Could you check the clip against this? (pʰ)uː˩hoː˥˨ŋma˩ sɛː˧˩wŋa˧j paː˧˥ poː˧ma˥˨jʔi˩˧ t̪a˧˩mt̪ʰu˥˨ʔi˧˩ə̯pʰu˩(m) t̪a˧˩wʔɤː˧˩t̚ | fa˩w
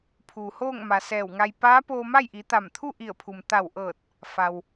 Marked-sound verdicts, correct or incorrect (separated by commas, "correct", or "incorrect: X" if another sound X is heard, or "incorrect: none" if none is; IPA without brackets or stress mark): correct, correct